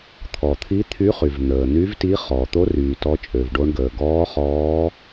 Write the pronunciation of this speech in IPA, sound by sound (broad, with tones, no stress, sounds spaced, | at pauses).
t̪ʰ ɔ˩ t̪ʰ i˧˥ t̪ʰ y˧˥ χ y˩ v n̪ əː˩ n̪ y˧˥ v t i˧˥ χ ɔː˩ t̪ o˧˥ r yː˩ t ɔ˧˥ t͡ʃʼ ø˩ v ɖ o˧˥ ɳ ɡ əː˩ ɡ ɔː˧˥ χ ɔː˧˥